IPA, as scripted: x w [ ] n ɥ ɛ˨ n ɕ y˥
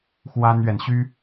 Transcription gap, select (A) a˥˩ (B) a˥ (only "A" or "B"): B